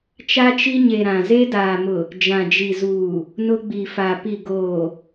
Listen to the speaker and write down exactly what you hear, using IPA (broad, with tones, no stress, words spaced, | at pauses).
t͡ʃa˦t͡ʃi˦ɲe˨ ɾã˨ze˦daː˨mʊ˨ | d͡ʒã˨d͡ʒi˨zuː˨ | nʊ˦ɡ͡bi˨fa˨ pi˨ɡoː˨